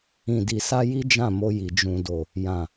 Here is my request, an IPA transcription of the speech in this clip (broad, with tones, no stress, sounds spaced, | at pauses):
ĩ˨ d i˨ s a˧ j i˦ d͡ʒ ã˦˨ m o˧ j i˨ d͡ʒ ũ˨ d o˨ | j ã˨